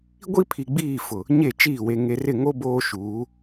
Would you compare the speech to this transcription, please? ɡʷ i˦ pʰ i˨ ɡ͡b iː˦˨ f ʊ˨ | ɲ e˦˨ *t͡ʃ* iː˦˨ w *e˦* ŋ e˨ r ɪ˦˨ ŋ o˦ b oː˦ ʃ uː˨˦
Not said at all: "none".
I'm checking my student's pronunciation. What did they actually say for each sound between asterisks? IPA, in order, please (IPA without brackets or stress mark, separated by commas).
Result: t͡ʃ, e˨